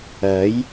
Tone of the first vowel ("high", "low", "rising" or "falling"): rising